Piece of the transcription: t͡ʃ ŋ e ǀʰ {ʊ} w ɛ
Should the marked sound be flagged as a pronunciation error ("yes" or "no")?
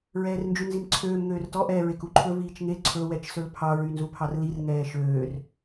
yes